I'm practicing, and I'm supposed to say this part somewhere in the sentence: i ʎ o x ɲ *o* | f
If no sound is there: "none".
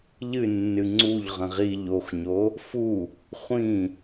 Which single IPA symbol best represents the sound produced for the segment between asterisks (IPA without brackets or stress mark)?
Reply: o